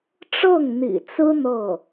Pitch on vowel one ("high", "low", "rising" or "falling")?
falling